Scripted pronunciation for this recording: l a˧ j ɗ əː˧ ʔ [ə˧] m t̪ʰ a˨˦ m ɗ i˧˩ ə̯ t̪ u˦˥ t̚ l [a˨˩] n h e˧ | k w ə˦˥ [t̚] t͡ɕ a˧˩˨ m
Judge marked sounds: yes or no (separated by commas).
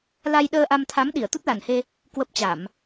no, yes, no